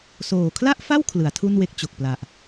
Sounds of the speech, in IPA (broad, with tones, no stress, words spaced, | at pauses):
soː˨˩kʰla˥˩ʔfa˥˩w kʰlɯ˩˦a̯tʰu˥˩nwe˦˥k̚ t͡ɕo˨˩k̚pla˨˩ʔ